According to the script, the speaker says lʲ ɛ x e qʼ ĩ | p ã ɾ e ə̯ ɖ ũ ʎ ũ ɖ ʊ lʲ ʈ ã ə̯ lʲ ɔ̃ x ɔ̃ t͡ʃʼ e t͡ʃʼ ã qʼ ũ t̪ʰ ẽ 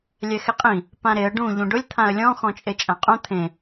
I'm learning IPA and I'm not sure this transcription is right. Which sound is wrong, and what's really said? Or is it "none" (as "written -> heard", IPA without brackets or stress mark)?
ʈ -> t̪ʰ